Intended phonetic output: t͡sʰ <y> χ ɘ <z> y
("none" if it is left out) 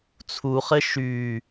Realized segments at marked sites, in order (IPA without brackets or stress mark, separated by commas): u, ʃ